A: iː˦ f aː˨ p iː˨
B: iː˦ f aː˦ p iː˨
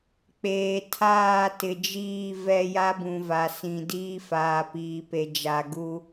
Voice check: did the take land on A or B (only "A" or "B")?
A